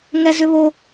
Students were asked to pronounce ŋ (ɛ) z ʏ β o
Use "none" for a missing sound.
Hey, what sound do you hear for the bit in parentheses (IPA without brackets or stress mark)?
ɛ